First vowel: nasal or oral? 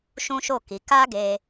nasal